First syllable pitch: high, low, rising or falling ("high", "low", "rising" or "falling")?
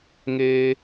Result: high